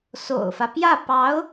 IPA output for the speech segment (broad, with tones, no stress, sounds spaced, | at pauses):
s o̰˨˩ ʊ̯ f ä˦ p j ä˥˩ p ɑ˧˥ ʊ̯